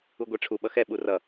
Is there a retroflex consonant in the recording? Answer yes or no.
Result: yes